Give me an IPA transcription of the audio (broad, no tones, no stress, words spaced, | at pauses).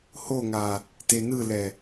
hoŋa | tenɯlɛ